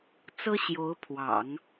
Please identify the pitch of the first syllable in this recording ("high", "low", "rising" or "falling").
high